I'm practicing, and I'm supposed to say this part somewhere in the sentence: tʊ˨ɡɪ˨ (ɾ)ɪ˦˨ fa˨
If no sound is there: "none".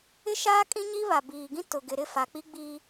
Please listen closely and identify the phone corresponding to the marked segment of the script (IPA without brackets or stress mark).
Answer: ɾ